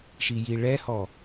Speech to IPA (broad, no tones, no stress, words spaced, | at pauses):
ʃijiɭɛhɔ